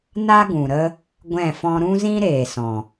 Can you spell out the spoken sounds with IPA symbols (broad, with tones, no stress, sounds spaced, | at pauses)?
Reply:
n a˦ ɡ ũ˨ ɾ ə˦ | ɡʷ ɛ̃˦˨ f ɔ̃˦ ɾ ũ˦ z ĩ˦ ɾ eː˨ s ɔ̃˨